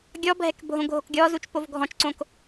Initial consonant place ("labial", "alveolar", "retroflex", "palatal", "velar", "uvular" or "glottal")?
velar